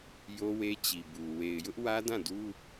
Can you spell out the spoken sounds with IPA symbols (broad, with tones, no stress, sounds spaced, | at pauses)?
j o˦ w e˦ t͡ɕ i˨ b u˨ w e˨ ɪ̯ j ʊ˦ ʔ w ä˦ d ã˦˨ d u˦